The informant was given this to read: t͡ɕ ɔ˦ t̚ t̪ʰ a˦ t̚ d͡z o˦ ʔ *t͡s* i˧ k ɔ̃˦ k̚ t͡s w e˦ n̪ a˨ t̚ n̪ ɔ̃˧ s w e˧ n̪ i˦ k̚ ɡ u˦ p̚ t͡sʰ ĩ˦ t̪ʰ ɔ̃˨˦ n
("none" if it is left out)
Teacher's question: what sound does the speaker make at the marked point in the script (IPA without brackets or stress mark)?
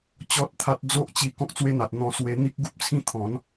t͡ɕ